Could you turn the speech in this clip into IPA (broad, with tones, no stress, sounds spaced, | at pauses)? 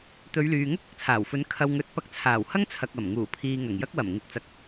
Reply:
t̪ ɵ˨˧ ɥ l yː˨ ŋ ʊ˥ k̚ ɐ˥ k̚ t͡sʰ aː˨˩ w f ɵ˨˥ n kʰ ɐ˧ w ŋ ɵ˨˥ t̚ p ɐ˧ k̚ t͡sʰ aː˨˩ w h ɐ˥ ŋ t͡sʰ ɐ˨ k̚ ɐ˨˩ m ŋ uː˨˩ pʰ iː˨ ŋ ɐ˨˩ ŋ j ɐ˥ k̚ w ɐ˨˩ m ŋ ɪ˨ k̚ t͡s ɐ˨ k̚